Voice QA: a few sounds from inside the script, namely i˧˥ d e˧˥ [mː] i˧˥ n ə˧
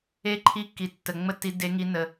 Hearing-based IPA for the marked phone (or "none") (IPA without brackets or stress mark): ŋ